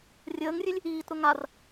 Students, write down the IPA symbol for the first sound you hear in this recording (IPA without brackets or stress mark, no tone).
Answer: rʲ